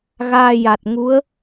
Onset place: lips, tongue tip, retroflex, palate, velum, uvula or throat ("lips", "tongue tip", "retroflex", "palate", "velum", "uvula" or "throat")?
velum